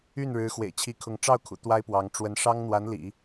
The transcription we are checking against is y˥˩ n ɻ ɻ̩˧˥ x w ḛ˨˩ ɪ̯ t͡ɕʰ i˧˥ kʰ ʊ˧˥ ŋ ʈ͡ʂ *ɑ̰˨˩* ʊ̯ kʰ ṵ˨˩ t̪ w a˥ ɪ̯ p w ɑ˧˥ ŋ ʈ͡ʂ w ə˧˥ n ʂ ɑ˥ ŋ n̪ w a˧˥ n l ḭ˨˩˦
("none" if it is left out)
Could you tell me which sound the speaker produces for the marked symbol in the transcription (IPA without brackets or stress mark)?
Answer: ɑ˥˩